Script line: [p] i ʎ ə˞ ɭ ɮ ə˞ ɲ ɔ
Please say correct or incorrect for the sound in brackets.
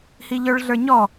incorrect